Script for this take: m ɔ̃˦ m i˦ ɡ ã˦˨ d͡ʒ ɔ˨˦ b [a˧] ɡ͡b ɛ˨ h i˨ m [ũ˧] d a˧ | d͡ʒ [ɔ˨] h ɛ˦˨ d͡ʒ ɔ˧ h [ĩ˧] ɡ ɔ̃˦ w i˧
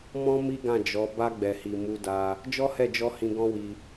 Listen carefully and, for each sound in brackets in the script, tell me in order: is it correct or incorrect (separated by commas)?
correct, incorrect, incorrect, correct